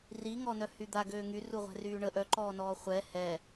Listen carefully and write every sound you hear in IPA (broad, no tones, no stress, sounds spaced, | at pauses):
r i ŋ ɔ n œ h y d̪ a ɡ øː ŋ y r u ʁʷ ɛ̤ r yː ɳ ə ʔ œ ǃ ɔː n ɔː χʷ ɛ h ɛ